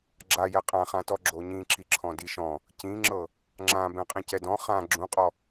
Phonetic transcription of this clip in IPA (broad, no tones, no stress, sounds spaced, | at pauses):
ɡ͡ǁ a j ɛ qʼ ã χ ã t ɔ ɡ͡ǁ o ɲ ĩ ǁ i ǁʰ ɔ̃ d i ʃ ɔ̃ | c ĩ ŋ͡ǁ ɤ | ŋ͡ǁ ã b ɛ̃ qʼ ĩ c ɛ d ɔ̃ χ ã ɡ͡ǁ ũ qʼ ɔ